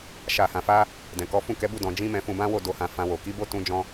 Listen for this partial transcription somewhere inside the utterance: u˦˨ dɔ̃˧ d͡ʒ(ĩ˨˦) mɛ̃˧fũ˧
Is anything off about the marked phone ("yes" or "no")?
yes